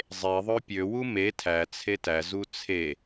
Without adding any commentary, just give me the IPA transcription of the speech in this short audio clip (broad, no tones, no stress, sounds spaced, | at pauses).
zˤ e ðˤ ø pʲ ø w u m e tʰ æ t͡sʰ e t æ z u t͡sʰ e